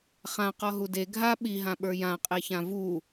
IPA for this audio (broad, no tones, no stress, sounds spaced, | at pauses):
χ ã q ɔ ɦ u d e ɡʱ a ɓ i ɦ ã ɓ ə˞ j ã qʼ e ç ã v u